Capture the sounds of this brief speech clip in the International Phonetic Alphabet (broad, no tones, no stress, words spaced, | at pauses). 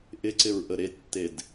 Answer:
ʔɪǀɪɹ ʔəɾetːed